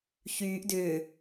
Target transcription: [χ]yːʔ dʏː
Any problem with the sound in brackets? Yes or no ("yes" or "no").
yes